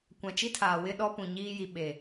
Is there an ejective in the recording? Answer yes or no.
no